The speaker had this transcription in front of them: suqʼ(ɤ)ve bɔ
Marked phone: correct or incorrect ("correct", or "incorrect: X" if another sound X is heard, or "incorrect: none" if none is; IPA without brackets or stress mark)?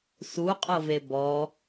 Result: correct